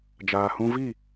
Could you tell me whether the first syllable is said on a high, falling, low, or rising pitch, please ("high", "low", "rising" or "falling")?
low